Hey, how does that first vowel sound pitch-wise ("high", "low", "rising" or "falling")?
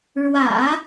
low